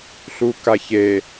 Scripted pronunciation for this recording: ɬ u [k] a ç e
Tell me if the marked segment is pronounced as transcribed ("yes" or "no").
yes